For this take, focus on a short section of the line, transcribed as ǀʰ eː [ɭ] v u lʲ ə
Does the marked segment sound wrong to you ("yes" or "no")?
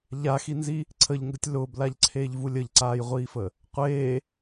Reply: yes